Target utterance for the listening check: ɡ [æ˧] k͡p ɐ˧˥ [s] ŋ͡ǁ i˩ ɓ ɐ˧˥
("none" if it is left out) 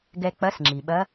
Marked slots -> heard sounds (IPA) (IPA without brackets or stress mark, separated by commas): ɛ˧, s